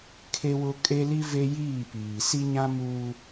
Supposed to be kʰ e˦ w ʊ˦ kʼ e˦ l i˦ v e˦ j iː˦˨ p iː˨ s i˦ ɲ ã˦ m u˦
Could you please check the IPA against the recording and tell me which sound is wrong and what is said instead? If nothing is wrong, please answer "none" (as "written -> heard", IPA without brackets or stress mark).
none